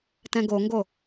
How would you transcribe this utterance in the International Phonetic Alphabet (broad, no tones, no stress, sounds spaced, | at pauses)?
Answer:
t ɛ̃ ɡ o ŋ ɡ o